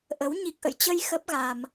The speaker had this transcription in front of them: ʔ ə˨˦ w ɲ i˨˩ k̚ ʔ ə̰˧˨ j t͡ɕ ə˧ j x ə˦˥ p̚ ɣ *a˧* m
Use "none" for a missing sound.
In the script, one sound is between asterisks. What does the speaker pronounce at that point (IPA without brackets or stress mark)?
a˧